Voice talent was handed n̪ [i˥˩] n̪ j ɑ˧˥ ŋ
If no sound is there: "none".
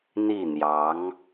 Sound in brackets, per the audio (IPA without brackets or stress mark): i˥˩